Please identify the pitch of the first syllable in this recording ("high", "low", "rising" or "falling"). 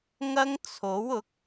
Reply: high